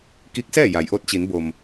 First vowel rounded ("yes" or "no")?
no